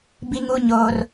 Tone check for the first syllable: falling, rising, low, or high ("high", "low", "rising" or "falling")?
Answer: high